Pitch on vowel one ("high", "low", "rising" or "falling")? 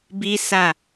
high